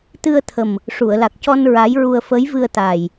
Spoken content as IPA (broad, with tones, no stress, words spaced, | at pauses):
t̪ɨ˧ə̯t̪ʰə˨˩m | ʂu˨˩˨ə̯la˨˩k̚cɔ˧n ɹa˧˥jɹu˧ə̯ fə˧˥jvɨ˧ə̯t̪a˨˩j